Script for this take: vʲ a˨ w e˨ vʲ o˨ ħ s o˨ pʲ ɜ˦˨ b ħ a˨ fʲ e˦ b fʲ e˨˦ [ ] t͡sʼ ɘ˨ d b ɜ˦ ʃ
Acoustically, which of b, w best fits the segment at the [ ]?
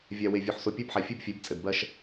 b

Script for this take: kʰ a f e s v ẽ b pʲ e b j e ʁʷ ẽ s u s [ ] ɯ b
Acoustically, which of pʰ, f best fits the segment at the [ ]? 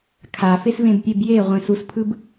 pʰ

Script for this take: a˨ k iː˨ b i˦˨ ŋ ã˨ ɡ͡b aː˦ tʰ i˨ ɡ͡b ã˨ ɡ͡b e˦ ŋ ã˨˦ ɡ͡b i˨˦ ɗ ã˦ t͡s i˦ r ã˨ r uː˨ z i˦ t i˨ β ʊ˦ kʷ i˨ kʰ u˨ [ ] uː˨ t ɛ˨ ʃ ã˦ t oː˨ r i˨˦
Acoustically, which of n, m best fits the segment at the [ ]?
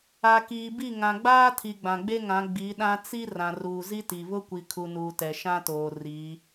n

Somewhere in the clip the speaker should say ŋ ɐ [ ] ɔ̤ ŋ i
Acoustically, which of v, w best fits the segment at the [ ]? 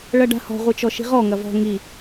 v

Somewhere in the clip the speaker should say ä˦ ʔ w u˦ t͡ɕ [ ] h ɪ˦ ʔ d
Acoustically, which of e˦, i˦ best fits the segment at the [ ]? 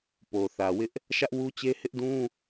e˦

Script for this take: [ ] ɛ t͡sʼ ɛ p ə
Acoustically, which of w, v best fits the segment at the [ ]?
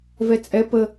v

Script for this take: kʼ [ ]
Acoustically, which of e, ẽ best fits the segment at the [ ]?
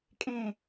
ẽ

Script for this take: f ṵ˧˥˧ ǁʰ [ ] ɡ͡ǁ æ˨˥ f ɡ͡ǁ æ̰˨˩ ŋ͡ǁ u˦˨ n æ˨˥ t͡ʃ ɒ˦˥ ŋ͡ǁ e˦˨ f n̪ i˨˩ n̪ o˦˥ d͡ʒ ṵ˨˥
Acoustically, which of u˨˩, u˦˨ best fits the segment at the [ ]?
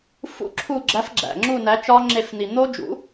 u˦˨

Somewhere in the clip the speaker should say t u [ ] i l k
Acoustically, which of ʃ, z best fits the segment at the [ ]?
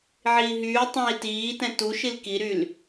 ʃ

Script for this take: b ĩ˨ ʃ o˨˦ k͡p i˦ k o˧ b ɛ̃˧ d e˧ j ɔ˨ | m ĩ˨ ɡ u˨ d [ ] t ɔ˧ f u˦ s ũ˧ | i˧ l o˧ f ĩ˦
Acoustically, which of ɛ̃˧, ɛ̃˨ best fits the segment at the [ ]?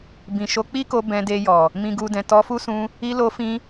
ɛ̃˨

